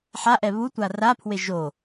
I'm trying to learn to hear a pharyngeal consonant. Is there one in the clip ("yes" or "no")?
yes